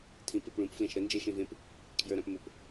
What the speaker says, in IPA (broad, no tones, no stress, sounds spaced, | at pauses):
tʰ ĩ p e p ɭ ũ p f l ẽ ʃ ɾ ə n d͡ʒ eː ʃ ẽ v ẽ p | kʰ j ə˞ ɾ ã p m ʊ p